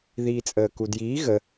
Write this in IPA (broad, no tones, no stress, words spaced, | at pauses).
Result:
ðiːt͡sʼəːkudjiː ɣə